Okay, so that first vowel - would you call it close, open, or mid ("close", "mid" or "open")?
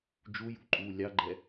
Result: close